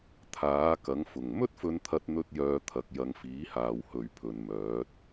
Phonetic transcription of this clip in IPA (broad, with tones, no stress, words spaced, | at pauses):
t̪ʰaː˨˥kɐ˨˥ŋfʊ˨˩ŋ mɵ˥t̚fɵ˨nt̪ʰɐ˨t̚ n̪ɵ˥t̚jœː˧t̪ʰɐ˨˥k̚ jɐ˨˧ŋfiː˨˥haː˨w hɵ˨ɥpʰɵ˨n mœː˨˥t̚